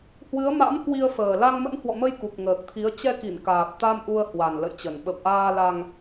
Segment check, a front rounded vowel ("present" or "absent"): absent